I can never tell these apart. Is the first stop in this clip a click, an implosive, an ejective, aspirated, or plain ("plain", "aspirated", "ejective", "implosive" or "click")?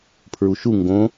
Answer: aspirated